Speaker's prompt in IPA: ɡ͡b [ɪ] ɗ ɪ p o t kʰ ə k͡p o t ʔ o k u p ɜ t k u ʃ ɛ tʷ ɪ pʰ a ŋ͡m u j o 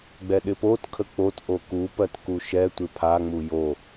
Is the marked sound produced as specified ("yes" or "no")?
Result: no